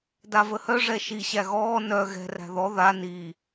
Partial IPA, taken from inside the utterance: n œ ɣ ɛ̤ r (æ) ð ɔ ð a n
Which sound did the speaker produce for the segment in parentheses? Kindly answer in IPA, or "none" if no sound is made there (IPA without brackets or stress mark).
æ̤